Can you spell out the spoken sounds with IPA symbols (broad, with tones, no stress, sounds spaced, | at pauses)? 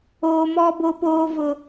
oː˦ m ɔ˦ b o˦ p oː˦ v ʊ˦